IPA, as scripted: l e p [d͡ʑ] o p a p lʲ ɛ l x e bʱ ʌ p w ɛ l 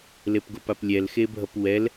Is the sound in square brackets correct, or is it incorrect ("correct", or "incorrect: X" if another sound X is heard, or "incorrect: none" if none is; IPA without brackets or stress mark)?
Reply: incorrect: ɡ